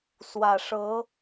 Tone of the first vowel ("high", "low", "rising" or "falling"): low